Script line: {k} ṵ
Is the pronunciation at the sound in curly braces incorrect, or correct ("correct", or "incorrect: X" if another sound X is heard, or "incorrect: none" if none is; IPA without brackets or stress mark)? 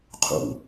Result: incorrect: qʰ